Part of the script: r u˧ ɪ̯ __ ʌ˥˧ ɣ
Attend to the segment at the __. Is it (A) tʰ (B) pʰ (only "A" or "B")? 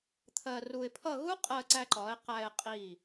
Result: B